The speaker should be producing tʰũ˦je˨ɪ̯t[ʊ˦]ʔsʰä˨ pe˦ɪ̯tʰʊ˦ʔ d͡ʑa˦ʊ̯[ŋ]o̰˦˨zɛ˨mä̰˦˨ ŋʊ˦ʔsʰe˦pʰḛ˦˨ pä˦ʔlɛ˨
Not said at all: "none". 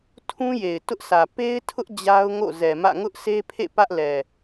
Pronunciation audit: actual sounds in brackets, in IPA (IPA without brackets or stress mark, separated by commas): ʊ˦, ŋ